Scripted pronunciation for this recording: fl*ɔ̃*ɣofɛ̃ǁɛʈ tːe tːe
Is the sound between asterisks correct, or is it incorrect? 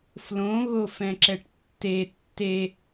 incorrect: õ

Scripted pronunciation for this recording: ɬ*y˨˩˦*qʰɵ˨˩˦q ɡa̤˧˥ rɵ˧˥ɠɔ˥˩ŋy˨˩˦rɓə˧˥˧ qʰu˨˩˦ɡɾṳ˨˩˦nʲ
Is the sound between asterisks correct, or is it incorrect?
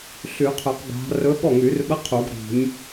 correct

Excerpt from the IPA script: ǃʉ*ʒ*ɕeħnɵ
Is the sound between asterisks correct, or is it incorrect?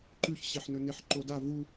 incorrect: ç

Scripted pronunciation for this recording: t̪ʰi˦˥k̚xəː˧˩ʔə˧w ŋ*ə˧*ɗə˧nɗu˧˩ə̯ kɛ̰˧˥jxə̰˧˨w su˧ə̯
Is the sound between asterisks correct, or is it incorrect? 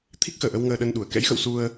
incorrect: əː˧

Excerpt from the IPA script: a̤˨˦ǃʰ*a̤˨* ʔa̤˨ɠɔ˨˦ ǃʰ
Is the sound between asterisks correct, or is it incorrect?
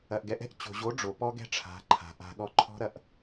correct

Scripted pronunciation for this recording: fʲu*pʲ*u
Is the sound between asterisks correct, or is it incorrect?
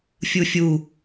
incorrect: fʲ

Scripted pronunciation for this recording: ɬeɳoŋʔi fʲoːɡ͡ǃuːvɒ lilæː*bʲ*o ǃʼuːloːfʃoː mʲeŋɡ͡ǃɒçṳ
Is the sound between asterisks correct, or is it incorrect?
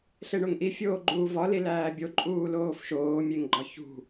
correct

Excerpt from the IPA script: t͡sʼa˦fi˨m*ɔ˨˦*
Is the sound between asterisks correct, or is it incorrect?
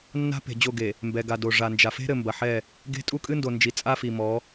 correct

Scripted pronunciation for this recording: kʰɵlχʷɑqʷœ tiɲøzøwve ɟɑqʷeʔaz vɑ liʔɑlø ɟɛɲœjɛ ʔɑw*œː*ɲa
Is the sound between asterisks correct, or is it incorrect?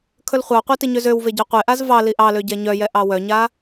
incorrect: œ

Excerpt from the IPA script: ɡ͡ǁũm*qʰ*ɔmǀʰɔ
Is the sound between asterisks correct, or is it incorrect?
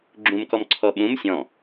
incorrect: k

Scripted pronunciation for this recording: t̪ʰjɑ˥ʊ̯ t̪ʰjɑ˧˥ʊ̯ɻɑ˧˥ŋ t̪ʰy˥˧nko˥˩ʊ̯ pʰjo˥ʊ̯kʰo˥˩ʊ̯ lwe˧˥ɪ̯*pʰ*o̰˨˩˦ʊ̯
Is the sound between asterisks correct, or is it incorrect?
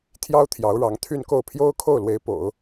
incorrect: p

